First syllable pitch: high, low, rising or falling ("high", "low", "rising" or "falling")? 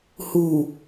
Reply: low